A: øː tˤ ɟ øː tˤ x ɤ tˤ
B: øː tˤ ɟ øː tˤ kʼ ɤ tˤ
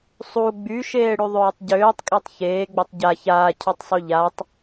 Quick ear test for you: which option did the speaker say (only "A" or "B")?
B